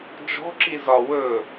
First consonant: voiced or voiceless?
voiced